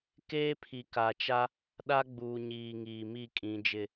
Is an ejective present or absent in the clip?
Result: present